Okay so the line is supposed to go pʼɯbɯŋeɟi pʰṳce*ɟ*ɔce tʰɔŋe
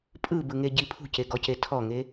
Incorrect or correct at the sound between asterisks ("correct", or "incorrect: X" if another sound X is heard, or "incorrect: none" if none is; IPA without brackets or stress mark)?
incorrect: ɡ